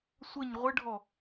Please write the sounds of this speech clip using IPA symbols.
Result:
sʷ ə ɲ ʁʷ ə ɖʱ ɔ

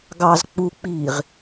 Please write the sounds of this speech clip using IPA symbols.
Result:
ɡ ɑ z k͡p u k͡p iː ʁ

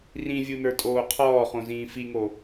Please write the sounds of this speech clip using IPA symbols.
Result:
r ĩ vʲ u n ə˞ tʼ oː qʰ ɔː χ õ z ĩː f i ŋ o

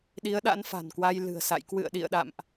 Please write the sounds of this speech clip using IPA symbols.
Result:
ɗ i˨˦ ə̯ ɗ a̰˧˥ n f a̤˨˩ n k w a˧ j l ɨ̤˨˩ ə̯ s a̰˧˨ j k w ɨ̰˧˨ ə̯ ɗ ḭ˧˨ ə̯ ɗ a̰˧˨ m ʔ

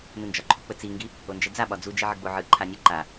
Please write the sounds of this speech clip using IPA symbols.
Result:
n ɯ n d͡ʒ ɒ ǃʰ u k͡p ə t͡s i ŋ ɡ i | o n d͡ʒ ɛ d͡z a ɓ ɒ d͡z u d͡ʒ i ʕ ə ɡ͡b o ʕ ɯ ǃʰ a nʲ ə ǃ a

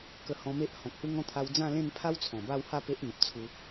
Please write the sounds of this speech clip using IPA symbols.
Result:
k ə˧ h ɔ̃˧ m e˦ ʔ h ɔ̃˨ k̚ h u˦ ŋ ɔ̃˦ t̪ʰ a˧ w d͡z ã˥˧ l ẽ˥˧ n pʰ a˦ w t͡sʰ ɔ̃˨˩ b a˥˧ w h a˥˧ p e˦ ʔ n̪ ə˨ p̚ t͡sʰ u˧

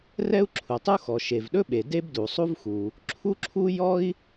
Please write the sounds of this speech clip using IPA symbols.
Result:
r ɛ˥ u̯ ǁʰ u˩ tˤ u˥ x ɔ˩ ʃ e˩ v ɗ ɵ˥ ɓ e˩ d e˥ b d u˩ sˤ u˥ v x u˩ | ǁʰ u˥ ǁʰ u˥ j ɔ˥ i̯

